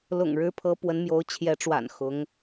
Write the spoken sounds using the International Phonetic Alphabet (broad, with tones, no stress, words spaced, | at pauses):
lʊ̰˨˩ŋɻɻ̩˧˥pʰɤ˧˥ pwə˧˥nmjo˧˥ʊ̯ t͡ɕʰjɛ˧˥ʈ͡ʂwa̰˨˩n xʊ˧˥ŋ